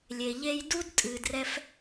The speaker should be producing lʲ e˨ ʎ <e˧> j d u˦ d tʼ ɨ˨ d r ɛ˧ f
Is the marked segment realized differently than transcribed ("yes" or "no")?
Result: yes